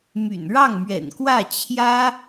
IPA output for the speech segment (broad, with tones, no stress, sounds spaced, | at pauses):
m y̰˨˩ n ɻ ɑ˥˩ ŋ m ɥ ɛ̰˨˩ n k w ä˥˩ t͡ɕʰ j ä˥